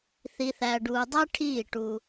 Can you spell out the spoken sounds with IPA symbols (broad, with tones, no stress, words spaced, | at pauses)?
θi˨θæ˨ɖuː˨ dˤæ˦ʈʰiː˦˨ ʈu˦